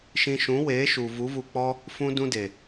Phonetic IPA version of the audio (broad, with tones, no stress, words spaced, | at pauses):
ʃĩ˧ ʃũ˨˦we˨˦ʃu˨ vu˨˦vu˧k͡pɔ˦ | fũ˦dũ˦de˨